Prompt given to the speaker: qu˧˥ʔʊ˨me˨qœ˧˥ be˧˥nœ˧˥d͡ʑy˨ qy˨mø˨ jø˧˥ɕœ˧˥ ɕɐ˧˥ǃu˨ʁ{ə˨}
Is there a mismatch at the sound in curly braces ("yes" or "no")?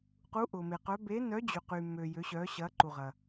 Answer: yes